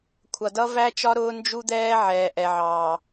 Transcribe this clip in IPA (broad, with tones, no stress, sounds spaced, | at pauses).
kʷʰ ʌ˨ d ʌ˦ v æ˦ t͡ʃ ɒ˦ ɾ ʊː˦ n d͡ʒ u˦ d̪ ɛː˦ ʕ ɛː˨ ʔ ɛ˨ ʕ ɑː˨